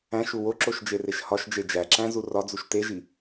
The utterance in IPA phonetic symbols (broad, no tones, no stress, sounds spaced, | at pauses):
æ̃ ʃ u w o ǁ o ʃ d͡ʒ e r e ʃ h ɒ ʃ d͡ʒ e d͡ʒ æ ǁ æ̃ z u r ɒ d͡z u ʃ t e ʒ i